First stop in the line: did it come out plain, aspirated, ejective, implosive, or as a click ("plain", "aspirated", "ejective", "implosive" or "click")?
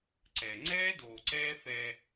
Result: click